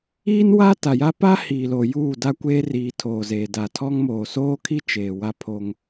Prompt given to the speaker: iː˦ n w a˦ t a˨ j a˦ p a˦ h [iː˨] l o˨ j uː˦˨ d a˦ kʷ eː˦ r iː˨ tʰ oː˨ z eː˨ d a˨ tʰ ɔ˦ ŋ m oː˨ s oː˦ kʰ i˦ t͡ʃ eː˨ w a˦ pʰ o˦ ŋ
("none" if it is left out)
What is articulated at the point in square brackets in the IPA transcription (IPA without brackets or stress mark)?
iː˨